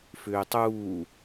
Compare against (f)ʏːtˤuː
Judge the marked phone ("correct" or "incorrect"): correct